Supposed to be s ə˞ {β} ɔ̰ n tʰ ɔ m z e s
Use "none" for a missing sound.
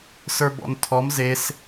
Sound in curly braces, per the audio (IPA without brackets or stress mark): b